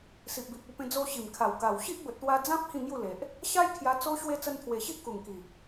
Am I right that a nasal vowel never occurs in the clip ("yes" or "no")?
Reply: no